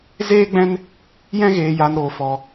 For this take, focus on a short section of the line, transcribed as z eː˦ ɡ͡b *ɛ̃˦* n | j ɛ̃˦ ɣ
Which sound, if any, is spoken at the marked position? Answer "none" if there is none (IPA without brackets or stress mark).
ɛ̃˦